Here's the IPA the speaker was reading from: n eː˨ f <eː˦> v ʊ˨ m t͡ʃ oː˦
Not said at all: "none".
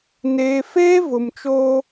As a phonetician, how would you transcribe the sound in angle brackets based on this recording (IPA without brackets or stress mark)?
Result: eː˦